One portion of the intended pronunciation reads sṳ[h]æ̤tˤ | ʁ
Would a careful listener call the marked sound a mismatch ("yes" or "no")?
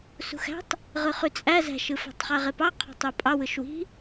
yes